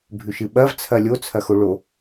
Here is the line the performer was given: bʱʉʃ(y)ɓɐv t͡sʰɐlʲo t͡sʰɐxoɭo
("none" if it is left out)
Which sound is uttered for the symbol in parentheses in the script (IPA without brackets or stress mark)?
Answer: ɨ